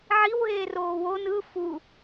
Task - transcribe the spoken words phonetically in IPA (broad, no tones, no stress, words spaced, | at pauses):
ʕiwɦeːroː won ɯ fu